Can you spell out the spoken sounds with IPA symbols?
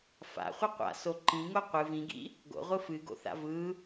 f a̰ χʷ i qʷ a̰ s o ǃ ĩ ŋ o qʷ ɨ v ĩ ɡ ḭ | ɡ o̰ ʁʷ ɯ f ɨ ɡ o̰ θ a̰ v ɯ

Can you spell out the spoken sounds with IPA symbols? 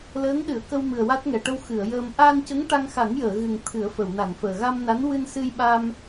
l əː˧˥ ŋ ɗ ɨ˨˩˨ ə̯ k ə˧ w m ɨ˨˩ ə̯ w a˦˥ t̚ ŋ ɛ˨˩ ʈ ə˧ w x ɨ˨˩˨ ə̯ j əː˧ m ʔ a˧ n c ə˧˥ ŋ ʈ a˧ ŋ x a˨˩˦ ŋ j əː˨˩˨ ɣ ɨ˨˩ ŋ t̪ʰ ɨ˨˩˦ ə̯ f ə˨˩˨ w n a˨˩˨ n f əː˨˩ ɣ a˧ m n a˧˥ n w ɨ˧ n s ɨ˧ j ɓ aː˧ m

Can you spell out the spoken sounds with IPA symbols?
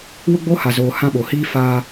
w ʊ˦ ɡ͡b oː˦ h a˨ z oː˨ h ã˦ ɓ o˨ h iː˦ f aː˦

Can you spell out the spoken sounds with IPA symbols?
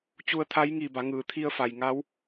t͡ɕ u˧ ə̯ t̪ʰ a˧˥ j ŋ iː˧˩ b a˩˧ ŋ ɯː˩ t̪ʰ i˧ ə̯ f a˩ j ŋ a˧˥ w

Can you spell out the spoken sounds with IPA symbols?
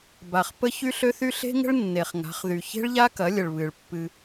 b a˨ χ p ə˦ ç y˦ ɬ ø˦ θ y˦ ɬ e̤˦ ŋ ə̤˦ ɭ nː e˨ χ ŋ a̤˨˦ χ ð y˨ ç e̤˦ ɭ ʎ a˦ k ɐ˨˦ lʲ ə˨ ɭ β ɨ˨ ɭ pː ɨ˧

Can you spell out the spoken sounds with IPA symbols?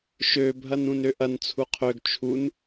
ʃ ø bʱ ɐ n ũ n ø ʔ ɐ n t͡sʰ u qʰ ø ɡ t͡ʃʰ u n

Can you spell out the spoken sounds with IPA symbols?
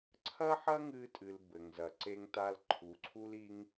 ǀʰ ɐ˦ ħ ɐ˦ ŋ ɨ˧ tʼ ɨ˨ l b ɘ˨ ŋ z ɐ˨ ǀ e˧ ŋ t a˧ l ǃʰ u˨ ǀʰ u˦ l i˦ ŋ

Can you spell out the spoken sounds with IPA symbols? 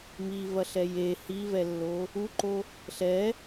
m i v ɐ ɬ ɛ j e h i v ɛ lː o | u ǃ o | ɬ ɛ

